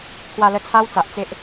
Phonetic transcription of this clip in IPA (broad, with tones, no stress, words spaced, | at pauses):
kʰwa˧lə˧ t͡sʰa˧wt͡sa˨ʔ t͡se˦ʔ